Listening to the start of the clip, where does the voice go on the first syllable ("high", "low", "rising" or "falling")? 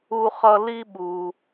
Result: high